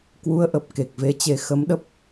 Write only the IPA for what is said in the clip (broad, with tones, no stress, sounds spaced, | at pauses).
k w u˨˦ ə̯ ʔ ə˨˩ p̚ k e˨˩ k̚ v e˧ t͡ɕ e˧ x ə˨˦ m ɗ ə˦˥ p̚